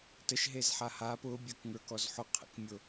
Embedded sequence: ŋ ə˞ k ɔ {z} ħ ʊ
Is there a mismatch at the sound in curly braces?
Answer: no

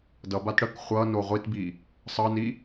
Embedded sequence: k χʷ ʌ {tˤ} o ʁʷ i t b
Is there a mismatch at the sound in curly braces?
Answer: yes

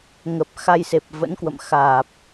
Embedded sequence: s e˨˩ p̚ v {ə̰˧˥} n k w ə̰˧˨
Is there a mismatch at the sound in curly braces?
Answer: no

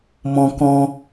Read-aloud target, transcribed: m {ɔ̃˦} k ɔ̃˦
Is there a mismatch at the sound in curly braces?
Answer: no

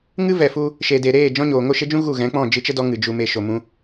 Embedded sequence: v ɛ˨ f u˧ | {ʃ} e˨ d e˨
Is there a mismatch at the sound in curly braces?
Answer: no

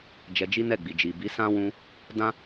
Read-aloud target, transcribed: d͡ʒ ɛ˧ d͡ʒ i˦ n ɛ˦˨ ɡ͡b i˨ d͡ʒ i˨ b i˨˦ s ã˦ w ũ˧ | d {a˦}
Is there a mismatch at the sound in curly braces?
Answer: yes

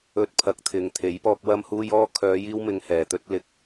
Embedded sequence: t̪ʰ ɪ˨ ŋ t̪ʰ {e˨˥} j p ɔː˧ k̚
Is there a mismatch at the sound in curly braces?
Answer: no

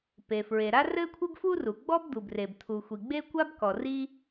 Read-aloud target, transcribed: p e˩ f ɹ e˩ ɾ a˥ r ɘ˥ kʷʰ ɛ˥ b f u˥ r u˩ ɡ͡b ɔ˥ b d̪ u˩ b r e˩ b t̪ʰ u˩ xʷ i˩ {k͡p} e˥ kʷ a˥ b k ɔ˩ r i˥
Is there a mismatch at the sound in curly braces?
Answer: yes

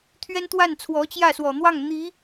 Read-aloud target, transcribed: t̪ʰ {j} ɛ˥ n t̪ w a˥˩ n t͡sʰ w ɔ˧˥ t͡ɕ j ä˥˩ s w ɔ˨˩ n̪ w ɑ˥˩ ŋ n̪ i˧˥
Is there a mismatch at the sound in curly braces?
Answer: yes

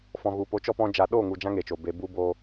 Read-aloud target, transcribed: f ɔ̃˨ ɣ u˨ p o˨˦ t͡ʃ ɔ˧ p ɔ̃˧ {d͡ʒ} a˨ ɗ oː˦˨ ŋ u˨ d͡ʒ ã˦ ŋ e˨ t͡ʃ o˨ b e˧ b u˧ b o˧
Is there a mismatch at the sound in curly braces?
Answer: no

